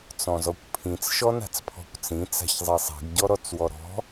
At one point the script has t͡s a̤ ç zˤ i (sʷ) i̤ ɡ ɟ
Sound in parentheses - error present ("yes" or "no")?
yes